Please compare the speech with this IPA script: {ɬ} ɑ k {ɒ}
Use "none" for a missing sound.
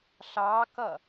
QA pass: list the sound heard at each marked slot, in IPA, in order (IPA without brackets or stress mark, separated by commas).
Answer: ɬ, ʌ